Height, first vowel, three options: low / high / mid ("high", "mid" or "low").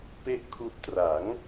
mid